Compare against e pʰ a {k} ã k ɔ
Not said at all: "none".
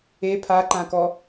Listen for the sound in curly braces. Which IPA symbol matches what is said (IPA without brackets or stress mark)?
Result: ǃ